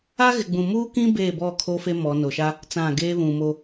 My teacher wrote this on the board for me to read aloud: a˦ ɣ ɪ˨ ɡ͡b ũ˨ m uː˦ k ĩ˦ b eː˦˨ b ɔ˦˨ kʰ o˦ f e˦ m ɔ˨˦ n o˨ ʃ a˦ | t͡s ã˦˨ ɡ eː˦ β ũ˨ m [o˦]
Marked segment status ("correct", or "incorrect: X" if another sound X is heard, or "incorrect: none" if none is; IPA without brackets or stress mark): correct